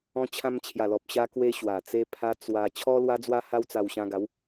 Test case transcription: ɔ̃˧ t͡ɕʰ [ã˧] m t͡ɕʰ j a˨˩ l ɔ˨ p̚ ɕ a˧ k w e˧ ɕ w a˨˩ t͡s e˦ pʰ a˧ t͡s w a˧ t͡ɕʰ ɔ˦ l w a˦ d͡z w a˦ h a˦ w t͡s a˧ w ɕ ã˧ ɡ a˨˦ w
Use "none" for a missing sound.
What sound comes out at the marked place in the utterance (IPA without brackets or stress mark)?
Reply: ã˧